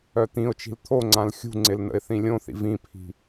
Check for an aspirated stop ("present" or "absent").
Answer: present